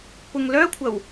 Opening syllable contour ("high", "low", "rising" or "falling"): low